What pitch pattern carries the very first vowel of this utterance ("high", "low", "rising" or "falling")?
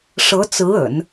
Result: rising